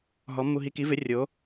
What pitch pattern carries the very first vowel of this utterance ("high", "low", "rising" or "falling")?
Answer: rising